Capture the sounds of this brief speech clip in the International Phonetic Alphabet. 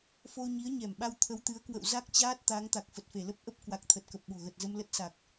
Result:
f o˧ ɲ i˨˦ ə̯ ɲ ɛ˧˩ m ɓ a˧ w t̪ʰ ə˨˦ w t̪ ɨ˨˦ ə̯ k w ə̰˧˨ w z a˦˥ k̚ t͡ɕ aː˦˥ t̚ t̪ aː˨˦ ŋ t̪ a˨˩ k̚ f ə˨˩ t̚ f e˧˩ l ə˦˥ p̚ ʔ ə˦˥ p̚ k w a˨˩ k̚ t̪ʰ ə˨˩ t̚ k ə˨˩ p̚ ɓ o̤˨˩ ɣ ə˨˩ t̚ z ə˧ m l ə˦˥ t̚ s a˨˩ k̚

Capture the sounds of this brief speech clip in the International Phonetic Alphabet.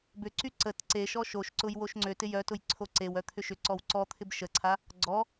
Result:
b ʏ ǀ y ǀ ə t ǀ e ʃ ɔ ʃ o ʃ ǀ ʊ j w o ʃ ŋ͡ǀ ø t ɪ j œ t ʊ j ǀʰ o ǀ e w œ t̪ʰ ʏ ʃ ʏ ǀ ɔ w ǀ ɔ t̪ʰ ɪ b ʃ ə ǀʰ a | ɡ͡ǀ ɔ

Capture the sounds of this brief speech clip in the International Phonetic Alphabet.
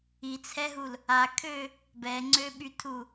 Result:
i t͡sʰ ɛ ɦ u l | a kʰ ø | b ɛ ŋ͡ǀ ø ɓ y tʰ u

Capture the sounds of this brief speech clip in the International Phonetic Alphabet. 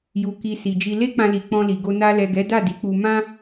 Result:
j u˨ k i˧ s i˨ d͡ʒ i˧ l e˦ k͡p ã˧ l i˨ k͡p ɔ̃˧ l i˨ ɡ o˧ n a˧ l ɛ˨ ɡ ɛ˨˦ d a˦˨ d i˨˦ k͡p u˧ m ã˦

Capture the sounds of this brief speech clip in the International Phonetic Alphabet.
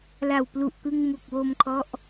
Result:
l a˨˩ w p l u˨˩ ʔ k ɯ˧ ŋ m u˨˩ k̚ w o˧ m kʰ ɔ˦˥ ʔ

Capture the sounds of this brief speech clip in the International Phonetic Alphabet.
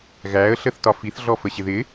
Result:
ɣ æ ə̯ ɬ ə θ t ɒ f i θ ɮ ɔ f ə ɕ ɪ ð ɪ

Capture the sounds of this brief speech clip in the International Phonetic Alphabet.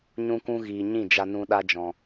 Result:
ɲ ũ˧ k ũ˧ ɣ iː˨ ɲ ĩ˦˨ d͡ʒ a˧ n ũ˧ ɗ a˧ d͡ʒ ɔ̃˨

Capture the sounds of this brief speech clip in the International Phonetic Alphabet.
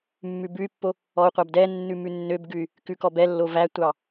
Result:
mː ʉ b ʉ y̯ pː o | ɔ u̯ qʷ æ b d ɛ nː ʉ m ʉ nː ø b ɡ ʉ y̯ | k ʉ k ɔ b ɛ lː o v æ tʷ ɑ

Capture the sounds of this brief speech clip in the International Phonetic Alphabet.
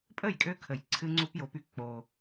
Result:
pʼ ə˦˨ j kʼ ø˦ kʰ ə˨ j ǀʰ ɨ˦ ŋ͡ǀ u˦ p j o˨˦ p y˦ k͡p o˦

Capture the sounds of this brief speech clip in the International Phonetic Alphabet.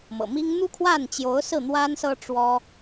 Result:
m ɤ̰˨˩ m i˥ ŋ n̪ u˥ kʰ w a˥˩ n t͡ɕ j o˧˥ ʊ̯ s ɹ̩˥˩ n̪ w a˥ n s ɤ˥ ʈ͡ʂ w ɔ˥

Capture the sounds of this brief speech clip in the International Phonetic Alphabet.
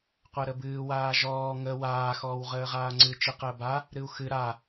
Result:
qʷ ə ɾ ə b ɨː w aː ʒ ɔː ŋ ə w aː x ɔː w ʁ əː ʁ aː ŋ͡ǀ ɨ t͡ʃ ɨ q əː b a | ɾ ɨ u̯ x ɨ ɾ a

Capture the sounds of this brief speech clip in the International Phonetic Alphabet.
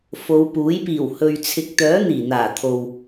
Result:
f o˨˧ w p uː˨˥ j p iː˨˩ w h ɵ˨ ɥ t͡sʰ ɪ˨ k̚ t̪ œː˨˥ n̪ iː˨˩ n̪ aː˨˩ t̪ʰ o˨ w

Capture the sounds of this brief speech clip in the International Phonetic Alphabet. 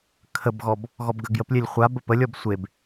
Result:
kʰ ə b ɣ ɔ b | ɣ ɔ b ɡ ə ɡ j ə p lʲ e lʲ χʷ a b ə p ə lʲ ɔ b sʷ e b

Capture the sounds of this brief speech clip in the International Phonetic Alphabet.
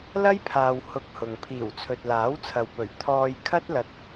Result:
l ɐ˥ j pʰ aː˨ w h ʊ˧ k̚ h ʊ˨ ŋ pʰ iː˨˩ w t͡sʰ ɵ˨ t̚ l aː˨˥ w t͡sʰ ɐ˨ w p ɵ˨˩ ɥ t̪ʰ ɔː˧ j kʰ ɐ˥ t̚ l ɐ˨ t̚

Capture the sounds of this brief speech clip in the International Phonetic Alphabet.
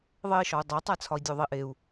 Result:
ðˤ e i̯ ʃ ɒ u̯ dˤ æ tˤ æ t͡sʰ ɒ i̯ dʲ o ðˤ i ʔ e u̯

